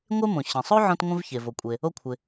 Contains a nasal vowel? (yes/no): yes